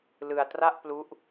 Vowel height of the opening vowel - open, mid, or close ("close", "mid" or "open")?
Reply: close